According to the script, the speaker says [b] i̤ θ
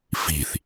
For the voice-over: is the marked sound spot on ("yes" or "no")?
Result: no